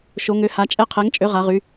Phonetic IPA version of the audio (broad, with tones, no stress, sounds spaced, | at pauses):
ʃ o˨˥ ŋ ø˨˥ h a˨˥ t͡ʃʼ ɛ˦˥ qʰ ɛ˨˥ ŋ t͡ʃʼ ø˨˥ ʁ a˨˥ ʁ y˨˥